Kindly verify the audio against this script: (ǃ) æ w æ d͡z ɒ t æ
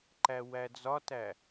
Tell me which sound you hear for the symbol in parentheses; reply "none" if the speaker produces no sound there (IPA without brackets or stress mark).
ǃ